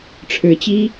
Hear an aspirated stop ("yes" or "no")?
yes